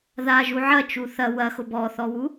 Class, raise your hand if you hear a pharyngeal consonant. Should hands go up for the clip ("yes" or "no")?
yes